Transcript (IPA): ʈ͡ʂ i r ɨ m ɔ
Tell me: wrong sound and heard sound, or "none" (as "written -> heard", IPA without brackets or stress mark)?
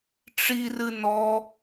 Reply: m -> n